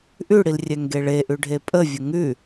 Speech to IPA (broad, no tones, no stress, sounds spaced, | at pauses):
ʔ ʉ ɽ i l rʲ ɛ ŋ ɡ e ɭ e ʔ ʉ ɖʱ e pʼ ə vʲ ə ŋ ʉ